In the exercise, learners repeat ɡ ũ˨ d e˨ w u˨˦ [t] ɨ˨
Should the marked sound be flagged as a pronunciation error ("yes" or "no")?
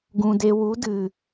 yes